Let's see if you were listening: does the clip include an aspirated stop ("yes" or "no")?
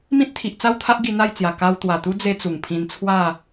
yes